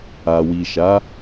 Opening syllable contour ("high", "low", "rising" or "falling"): low